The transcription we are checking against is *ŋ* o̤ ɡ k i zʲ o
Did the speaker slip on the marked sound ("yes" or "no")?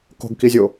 yes